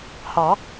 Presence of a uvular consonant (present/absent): absent